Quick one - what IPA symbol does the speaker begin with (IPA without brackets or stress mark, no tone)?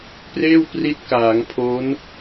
p